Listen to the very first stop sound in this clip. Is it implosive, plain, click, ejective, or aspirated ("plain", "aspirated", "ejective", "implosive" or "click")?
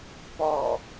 plain